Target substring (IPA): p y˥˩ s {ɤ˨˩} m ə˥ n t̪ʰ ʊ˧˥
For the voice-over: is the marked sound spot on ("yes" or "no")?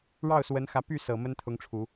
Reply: yes